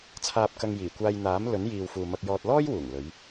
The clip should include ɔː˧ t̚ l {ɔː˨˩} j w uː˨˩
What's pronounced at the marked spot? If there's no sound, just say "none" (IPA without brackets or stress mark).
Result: ɔː˥